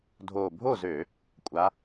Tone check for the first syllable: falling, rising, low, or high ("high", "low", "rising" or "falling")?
low